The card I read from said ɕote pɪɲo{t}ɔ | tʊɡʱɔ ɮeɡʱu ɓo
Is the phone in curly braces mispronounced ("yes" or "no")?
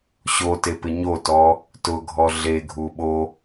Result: no